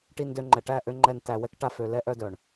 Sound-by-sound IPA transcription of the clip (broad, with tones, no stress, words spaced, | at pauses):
ʈi˧ndø˧ŋ͡ǃɛ˨ ʈæ˦˨ʔø˧ ŋ͡ǃɛ˨n tæ˨wɛ˧k ʈa˨fø˨ lɛ˧ʔœ˧dœ˨ɳ